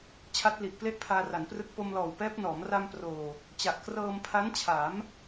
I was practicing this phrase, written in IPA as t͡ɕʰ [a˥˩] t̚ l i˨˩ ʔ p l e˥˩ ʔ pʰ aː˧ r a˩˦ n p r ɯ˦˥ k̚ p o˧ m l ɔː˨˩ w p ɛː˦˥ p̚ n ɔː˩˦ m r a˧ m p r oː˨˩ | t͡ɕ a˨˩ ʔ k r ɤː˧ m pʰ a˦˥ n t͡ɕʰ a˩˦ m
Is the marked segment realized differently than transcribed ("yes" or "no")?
yes